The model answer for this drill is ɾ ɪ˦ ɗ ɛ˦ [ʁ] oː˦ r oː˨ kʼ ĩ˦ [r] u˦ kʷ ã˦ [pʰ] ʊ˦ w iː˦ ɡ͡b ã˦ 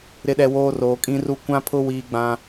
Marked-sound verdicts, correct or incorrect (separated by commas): incorrect, correct, correct